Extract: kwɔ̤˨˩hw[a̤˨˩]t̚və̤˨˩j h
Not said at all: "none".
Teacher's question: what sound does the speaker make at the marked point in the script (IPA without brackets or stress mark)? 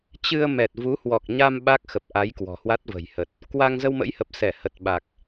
a˦˥